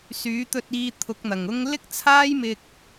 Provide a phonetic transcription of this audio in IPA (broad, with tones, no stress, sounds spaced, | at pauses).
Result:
s yː˨˥ t̪ ɵ˧ t̚ iː˧ t̪ʰ ʊ˨˥ k̚ n̪ ɐ˨˩ ŋ ʊ˥ ŋ l ɪ˥ k̚ t͡sʰ aː˥ j m ɪ˧ k̚